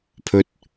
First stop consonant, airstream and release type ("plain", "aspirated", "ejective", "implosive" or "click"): aspirated